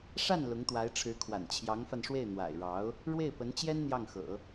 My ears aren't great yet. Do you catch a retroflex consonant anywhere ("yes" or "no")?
yes